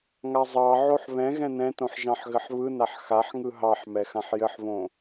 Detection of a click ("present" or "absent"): absent